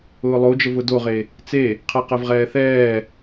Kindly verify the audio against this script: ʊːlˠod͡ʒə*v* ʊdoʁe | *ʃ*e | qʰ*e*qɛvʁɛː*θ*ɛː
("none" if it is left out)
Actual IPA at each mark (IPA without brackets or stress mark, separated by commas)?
v, t͡s, ɛ, θ